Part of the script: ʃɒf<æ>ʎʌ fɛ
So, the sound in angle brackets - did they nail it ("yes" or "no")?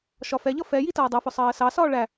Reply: no